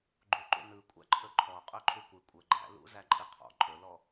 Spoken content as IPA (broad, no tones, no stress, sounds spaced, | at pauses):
ɡ͡ǃ u ǃ ṵ n ɯ kʷʼ æ̰ ǃʰ ɵ ǃʰ ɔ qʼ ɵ ǃʰ u kʷ ɨ kʷʼ ə ɡ͡ǃ æ̰ l ṵ z æ ǃʼ ɨ qʰ ɔ̰ ǃʼ ɵ l ɔ